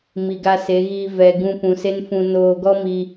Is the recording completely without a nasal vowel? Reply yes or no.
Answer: no